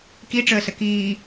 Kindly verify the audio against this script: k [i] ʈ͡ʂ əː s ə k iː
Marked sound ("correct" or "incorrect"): correct